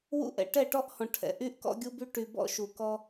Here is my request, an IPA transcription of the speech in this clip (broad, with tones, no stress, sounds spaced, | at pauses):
w ṵ˦ ʔ ɛ̰˨ ʈ ɛ˦˨ ʈ ɔ˦ ʔ h ɔ̃˨ ʈʰ ɛ̰˨ ʔ y˦ ʔ k ɔ̰˦ ɡʲ u˦ b y˦ ʈ y˨ b ɔ̰˦ ʃ u˨ k ɔ˦